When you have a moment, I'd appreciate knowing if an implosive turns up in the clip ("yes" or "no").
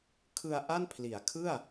no